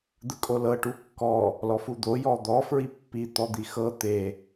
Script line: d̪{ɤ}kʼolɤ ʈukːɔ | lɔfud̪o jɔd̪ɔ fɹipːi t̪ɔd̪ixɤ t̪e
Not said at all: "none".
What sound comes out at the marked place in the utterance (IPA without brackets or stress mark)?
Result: ɯ